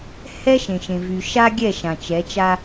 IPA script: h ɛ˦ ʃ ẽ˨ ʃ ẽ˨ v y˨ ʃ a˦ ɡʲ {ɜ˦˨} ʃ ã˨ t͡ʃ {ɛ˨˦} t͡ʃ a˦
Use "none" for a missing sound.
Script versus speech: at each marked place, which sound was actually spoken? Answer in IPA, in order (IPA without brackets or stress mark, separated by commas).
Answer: ɛ˦˨, ɛ˨˦